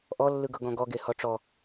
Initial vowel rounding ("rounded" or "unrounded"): rounded